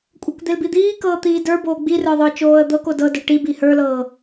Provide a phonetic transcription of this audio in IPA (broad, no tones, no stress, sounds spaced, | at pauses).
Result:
kʷʼ ə˞ k d̪ e l b i d̪ iː k ɤː t̪ iː d ə˞ b oː ɡ͡b i r ə˞ ðˤ ə˞ t͡ʃ oː ə̯ d̪ ɤ k o d ɤ d ə˞ ʈ i b i h ə˞ l ɤː